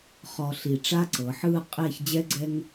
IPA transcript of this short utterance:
χ ɔ˧ ɬ i˧˩ ʈ͡ʂ a˥ ǀ ɤ˩˧ ħ ɯː˥˧ qʼ eː˥˧ ç d͡ʑ ɛ˥ ɡ͡ǀ ɛ˥ ŋ

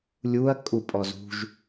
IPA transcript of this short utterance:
lʲ u ɐ̯ kʼ u pʼ ɔ z ṳ ʒ

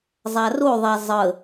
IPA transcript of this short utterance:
zˤ a r o ðˤ a zˤ ə

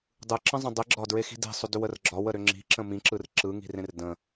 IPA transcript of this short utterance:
dˤ ɯ ǁ ə̃ zˤ ə̃ dˤ i ɡ͡ǁ ɒ d ɹ e x i̤ d i̤ sˤ ʏ d ʏ w ə r ɡ͡ǁ ɒ w ə ɾ ʏ ŋ͡ǁ i̤ ǁ ə̃ m ĩ ǁ ɯ r ǁ ɯ ŋ i̤ r ẽ r d ə̃

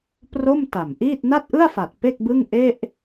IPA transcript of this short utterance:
p r o˥˩ m t a˨˩ m ʔ iː˥˩ t̚ n a˥˩ t̚ ʔ ɯ˥˩ a̯ f a˨˩ t̚ p e˥˩ k̚ b ɯ˥˩ ŋ ʔ e˥˩ ʔ

